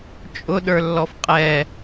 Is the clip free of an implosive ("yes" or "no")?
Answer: no